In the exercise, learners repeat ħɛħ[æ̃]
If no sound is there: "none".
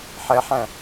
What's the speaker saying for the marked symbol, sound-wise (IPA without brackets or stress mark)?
æ̃